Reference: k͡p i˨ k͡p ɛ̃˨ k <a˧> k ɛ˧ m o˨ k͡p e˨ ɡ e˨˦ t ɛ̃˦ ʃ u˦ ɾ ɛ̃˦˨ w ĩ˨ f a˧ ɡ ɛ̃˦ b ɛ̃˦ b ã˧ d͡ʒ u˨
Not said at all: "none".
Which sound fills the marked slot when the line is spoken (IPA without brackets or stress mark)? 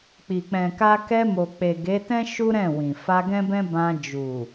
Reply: a˧